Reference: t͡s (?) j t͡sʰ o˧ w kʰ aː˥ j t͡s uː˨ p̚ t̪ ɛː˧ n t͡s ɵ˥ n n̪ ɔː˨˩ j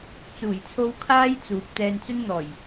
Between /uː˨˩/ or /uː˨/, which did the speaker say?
uː˨˩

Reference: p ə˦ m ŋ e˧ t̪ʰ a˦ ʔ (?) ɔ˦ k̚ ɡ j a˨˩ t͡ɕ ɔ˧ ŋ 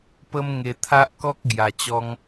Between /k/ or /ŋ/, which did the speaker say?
k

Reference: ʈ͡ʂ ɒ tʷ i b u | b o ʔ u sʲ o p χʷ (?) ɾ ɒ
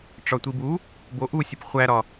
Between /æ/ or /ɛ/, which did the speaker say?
æ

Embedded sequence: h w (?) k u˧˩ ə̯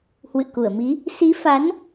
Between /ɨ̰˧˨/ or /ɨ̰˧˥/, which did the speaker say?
ɨ̰˧˨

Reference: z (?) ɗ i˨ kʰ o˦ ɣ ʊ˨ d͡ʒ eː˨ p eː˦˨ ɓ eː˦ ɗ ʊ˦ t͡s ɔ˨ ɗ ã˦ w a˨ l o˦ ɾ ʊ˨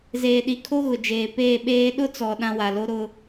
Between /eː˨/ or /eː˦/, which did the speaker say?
eː˨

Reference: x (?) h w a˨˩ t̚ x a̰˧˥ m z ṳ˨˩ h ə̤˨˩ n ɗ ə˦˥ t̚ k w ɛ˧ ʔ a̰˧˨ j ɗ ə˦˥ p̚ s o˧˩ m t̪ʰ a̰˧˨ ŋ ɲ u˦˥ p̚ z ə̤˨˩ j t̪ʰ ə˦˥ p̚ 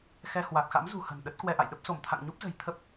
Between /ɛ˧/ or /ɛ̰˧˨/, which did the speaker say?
ɛ˧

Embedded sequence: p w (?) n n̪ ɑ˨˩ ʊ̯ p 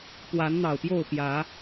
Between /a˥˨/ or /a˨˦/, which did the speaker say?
a˨˦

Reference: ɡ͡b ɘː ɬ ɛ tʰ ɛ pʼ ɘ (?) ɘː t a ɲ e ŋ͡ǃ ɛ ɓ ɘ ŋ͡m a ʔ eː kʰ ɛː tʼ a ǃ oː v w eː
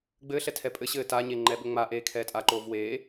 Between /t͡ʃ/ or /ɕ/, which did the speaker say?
ɕ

